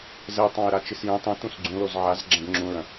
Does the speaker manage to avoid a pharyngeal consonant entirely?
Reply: no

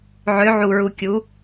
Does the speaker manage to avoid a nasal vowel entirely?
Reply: yes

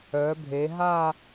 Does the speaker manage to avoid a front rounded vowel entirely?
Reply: no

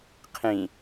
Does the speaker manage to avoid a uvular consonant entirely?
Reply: no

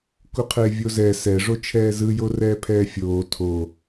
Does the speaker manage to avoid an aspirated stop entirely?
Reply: no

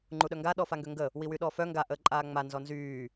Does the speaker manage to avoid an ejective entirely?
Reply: no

